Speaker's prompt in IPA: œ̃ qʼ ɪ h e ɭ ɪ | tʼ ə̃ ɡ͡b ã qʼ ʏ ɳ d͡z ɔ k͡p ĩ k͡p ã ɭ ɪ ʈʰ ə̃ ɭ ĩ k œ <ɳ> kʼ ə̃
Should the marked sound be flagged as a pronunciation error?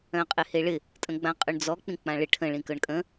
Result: no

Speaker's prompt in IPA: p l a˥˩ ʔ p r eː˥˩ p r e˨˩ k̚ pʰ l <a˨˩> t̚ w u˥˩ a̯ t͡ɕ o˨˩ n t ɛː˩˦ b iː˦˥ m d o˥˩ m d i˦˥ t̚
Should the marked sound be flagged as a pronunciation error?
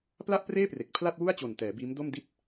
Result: yes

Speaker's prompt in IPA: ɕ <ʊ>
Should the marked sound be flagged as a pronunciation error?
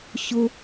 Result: no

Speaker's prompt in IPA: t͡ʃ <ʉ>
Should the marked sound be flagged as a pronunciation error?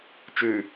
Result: no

